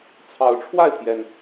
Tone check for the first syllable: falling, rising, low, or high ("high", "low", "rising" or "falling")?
rising